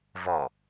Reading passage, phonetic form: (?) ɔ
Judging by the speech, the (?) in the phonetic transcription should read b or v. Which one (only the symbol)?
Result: v